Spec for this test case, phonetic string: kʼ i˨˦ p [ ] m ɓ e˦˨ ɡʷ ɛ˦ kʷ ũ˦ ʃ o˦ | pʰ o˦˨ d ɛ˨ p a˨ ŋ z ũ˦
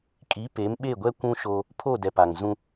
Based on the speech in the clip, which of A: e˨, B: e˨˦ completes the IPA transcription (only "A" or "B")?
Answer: B